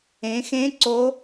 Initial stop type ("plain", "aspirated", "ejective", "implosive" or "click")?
click